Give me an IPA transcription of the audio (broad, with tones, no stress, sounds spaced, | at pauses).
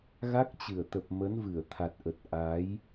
ɣ a˦˥ k̚ t͡ɕ ɨ˧˩ ə̯ t̪ ə˨˩ p̚ m ə˨˦ n v ɨ˧˩ ə̯ t̪ʰ a˨˩ t̚ ʔ ə˨˩ t̚ ʔ a˨˦ j